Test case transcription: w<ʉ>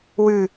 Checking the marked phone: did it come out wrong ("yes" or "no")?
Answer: no